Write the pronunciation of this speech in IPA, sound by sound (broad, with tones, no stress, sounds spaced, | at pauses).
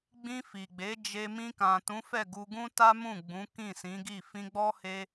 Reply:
ɡ͡b ĩ˧ f i˨ ɡ͡b e˨˦ d͡ʒ e˧ m ĩ˧ k ã˨ t ũ˨˦ f ɛ˦˨ ɡ u˧ ɡ ũ˦ t a˦ m ũ˦˨ ɡ͡b ũ˨˦ k ĩ˦˨ s ĩ˨˦ ɡ i˦˨ f ĩ˧ ɡ͡b ɔ˦ h e˦